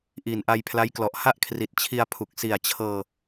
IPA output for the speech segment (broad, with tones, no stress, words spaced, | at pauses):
ʔiː˨˩nʔa˧jpʰla˦˥jklɔ˨˩ʔ ha˥˩ʔkʰri˨˩t̚ t͡ɕʰi˧a̯pʰu˨˩k̚ si˨˩a̯ t͡ɕʰɤː˧